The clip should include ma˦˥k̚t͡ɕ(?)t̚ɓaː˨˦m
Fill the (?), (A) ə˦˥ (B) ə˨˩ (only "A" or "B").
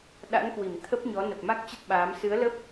A